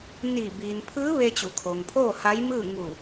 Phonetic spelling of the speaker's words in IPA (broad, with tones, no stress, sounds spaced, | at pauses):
n iː˧˩ b iː˩ n pʰ ɯː˧˥ ʋ e˧ t͡ɕ u˩˧ kʰ o˩ ŋ pʰ oː˥˨ h a˧˥ j m ɯː˥˨ ŋ u˧˩